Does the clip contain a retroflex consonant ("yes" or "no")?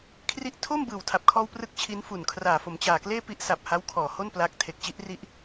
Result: no